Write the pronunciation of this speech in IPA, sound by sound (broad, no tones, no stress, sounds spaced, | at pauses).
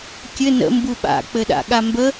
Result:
kʲ ɘ n ə̰ m b u ɓ a̰ k͡p ɘ ɗ a̰ ɠ a m b ə